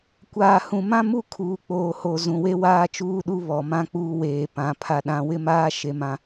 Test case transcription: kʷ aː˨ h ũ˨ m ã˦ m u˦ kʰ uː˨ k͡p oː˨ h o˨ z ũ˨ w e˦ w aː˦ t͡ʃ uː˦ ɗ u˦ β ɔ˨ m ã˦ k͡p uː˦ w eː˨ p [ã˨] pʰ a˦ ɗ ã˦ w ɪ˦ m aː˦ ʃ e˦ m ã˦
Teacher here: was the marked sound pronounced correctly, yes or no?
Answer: no